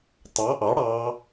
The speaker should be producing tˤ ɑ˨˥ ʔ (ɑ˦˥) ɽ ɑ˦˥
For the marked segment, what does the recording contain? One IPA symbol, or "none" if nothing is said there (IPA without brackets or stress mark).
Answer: ɑ˨˥